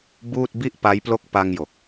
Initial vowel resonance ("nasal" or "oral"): oral